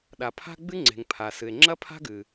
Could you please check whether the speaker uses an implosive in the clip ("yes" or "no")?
yes